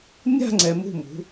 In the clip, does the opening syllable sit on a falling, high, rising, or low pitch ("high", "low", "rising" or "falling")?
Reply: falling